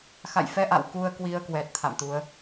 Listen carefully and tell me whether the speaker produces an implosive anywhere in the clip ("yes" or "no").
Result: no